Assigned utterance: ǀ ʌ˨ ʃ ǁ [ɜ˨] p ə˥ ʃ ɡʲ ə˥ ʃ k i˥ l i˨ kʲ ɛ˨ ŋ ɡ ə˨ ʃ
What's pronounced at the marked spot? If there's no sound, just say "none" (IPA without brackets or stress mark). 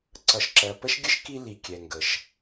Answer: ɜ˨